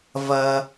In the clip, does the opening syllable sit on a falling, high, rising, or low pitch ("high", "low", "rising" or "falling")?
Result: high